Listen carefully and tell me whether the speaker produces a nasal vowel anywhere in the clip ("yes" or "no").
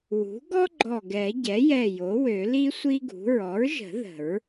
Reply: no